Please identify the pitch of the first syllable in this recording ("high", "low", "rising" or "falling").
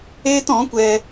high